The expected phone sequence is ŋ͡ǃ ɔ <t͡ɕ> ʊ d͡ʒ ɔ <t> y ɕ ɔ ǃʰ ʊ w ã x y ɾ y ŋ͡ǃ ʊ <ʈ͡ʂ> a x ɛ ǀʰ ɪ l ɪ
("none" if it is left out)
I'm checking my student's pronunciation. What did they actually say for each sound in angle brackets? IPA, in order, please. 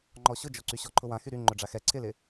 ɕ, ǀ, ɖ͡ʐ

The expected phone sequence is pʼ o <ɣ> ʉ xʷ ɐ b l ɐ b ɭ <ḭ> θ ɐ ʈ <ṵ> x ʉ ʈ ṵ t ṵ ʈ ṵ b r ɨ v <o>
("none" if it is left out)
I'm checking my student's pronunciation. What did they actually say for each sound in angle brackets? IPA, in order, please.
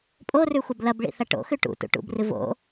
r, ḭ, o̰, o̰

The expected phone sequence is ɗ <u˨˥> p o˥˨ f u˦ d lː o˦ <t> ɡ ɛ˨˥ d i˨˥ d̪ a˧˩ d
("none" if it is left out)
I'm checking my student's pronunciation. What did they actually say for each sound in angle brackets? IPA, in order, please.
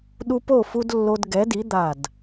u˦, d

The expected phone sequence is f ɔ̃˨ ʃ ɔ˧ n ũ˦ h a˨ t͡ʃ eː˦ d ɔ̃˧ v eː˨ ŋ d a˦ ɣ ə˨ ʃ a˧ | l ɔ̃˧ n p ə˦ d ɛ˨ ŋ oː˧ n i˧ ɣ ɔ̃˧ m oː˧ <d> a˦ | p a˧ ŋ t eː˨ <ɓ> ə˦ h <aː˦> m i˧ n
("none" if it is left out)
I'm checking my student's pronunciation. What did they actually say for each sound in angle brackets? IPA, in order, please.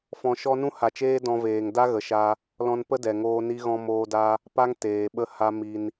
d, ɓ, a˦

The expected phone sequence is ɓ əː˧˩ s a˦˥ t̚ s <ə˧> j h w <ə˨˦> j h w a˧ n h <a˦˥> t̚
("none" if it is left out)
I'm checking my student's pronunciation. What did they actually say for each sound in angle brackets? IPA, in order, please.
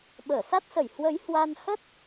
ə˧˩, ə˨˦, ə˦˥

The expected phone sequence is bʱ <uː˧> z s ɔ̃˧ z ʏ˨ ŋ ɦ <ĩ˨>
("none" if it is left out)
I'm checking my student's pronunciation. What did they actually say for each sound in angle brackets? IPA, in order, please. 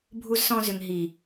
u˧, i˨

